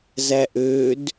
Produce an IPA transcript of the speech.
z æ ʔ ø d

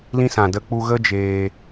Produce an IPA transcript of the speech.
l ĩ˦ s ã˨ d ə˧ k͡p u˧ ɣ ə˦ d͡ʒ eː˧

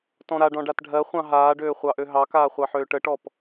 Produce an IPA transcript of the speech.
t ɔ̃ ɾ a ɖ ɔ̃ ɖ a t ɖʱ ɜ χʷ ɑ̃ ɦ aː ɖ øː χʷ ɑ ʔ ø ɦ ɑ k aː χʷ ɑ ħ øː ʈ ə ʈ ɔ p

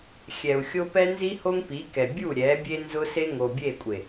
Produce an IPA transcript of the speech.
xʲ ɛ˨ u̯ xʲ o˦ p ɛ˦ n z i˦ h o˦ ŋ p i˨˦ k ɛ˨ bʲ u˦˨ ɾʲ ɛ˨˦ bʲ e˦ n z ʊ˦ s e˦ ŋ o˨ bʲ e˦˨ kʷʼ e˨

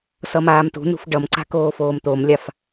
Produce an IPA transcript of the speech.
s ʌ m aː m t ṳ n ṳ f ɖ ʌ m ǀ a̤ k oː f oː m t̪ o m lʲ a f

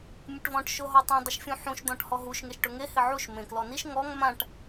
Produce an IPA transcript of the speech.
mʲ ʊ ʈ v ɔ̃ ʈ ʃ ʊ ɦ ɔ tˤ ĩ dˤ ʊ ʃ fʲ ũ ħ ũ ʃ d̪ ɔ̃ ʈ h ɔ ɦ u ʃ ŋ e ʃ ʈ ʊ ŋ e h ɪ ʕ u ʃ m ẽ k l ɔ n i ʃ ŋ ɔ ŋ m ã ʈ

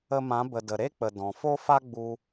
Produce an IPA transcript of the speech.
ə˧ m ã˨˦ b ə˨ d ə˨ ɾ e˦ k͡p ə˨ d ɔ̃˨ f o˦ f a˦ ɡ͡b u˦

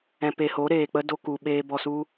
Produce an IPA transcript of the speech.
ɛ̃˧ p e˧ h o˨˦ ɾ eː˨ k͡p ə˦ d o˦ k u˧ ɓ eː˦ b ɔ˧ s u˦

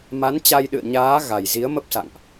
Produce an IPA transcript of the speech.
m a˨˦ n t͡ɕ a˧ j ɗ ɨ̰˧˨ ə̯ ɲ aː˨˦ ɣ a˨˩ j z i˨˦ ə̯ m ə˦˥ p̚ s a̰˧˨ ŋ ʔ

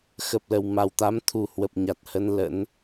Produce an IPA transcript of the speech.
x ə˨˩ p̚ l ə˨˩ w m a˨˩ w t̪ a˨˦ m t̪ʰ u˨˩ h w ə˨˩ p̚ ɲ a˨˩ t̚ h ə˧ n l ə̰˧˥ n

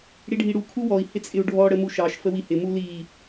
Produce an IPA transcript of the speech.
ɽ i ɖʱ i ɽ u kʰ u w ɔ i̯ h ɪ t͡sʼ ɪ u̯ ɖʱ ɔ ɽ ə m u ʃ ɑ ʃ f ə w i h ɪ m u l i

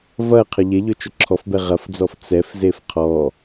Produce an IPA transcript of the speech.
v ɐ qʰ ə ʎ e ʎ ɵ t͡ʃ ɵ ǁʰ ɔ f b ɛ ʁ ɐ f d͡z ɔ f t͡s ɛ f z e f qʰ ɔ

